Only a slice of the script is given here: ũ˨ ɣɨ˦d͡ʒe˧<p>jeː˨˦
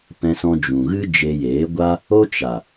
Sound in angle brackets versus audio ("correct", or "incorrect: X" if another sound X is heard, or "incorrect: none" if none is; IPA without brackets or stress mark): incorrect: none